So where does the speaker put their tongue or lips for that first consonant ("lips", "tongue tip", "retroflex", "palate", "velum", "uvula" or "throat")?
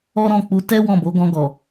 tongue tip